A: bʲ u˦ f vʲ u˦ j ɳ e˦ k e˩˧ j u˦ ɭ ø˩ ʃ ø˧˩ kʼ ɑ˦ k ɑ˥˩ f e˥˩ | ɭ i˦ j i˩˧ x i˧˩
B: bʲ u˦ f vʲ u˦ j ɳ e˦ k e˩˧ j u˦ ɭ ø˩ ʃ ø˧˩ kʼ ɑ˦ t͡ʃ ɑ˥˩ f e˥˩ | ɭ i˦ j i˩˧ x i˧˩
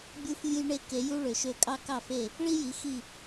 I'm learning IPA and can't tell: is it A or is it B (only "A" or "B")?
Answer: A